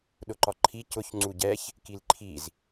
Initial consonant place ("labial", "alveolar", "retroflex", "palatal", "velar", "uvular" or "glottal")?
alveolar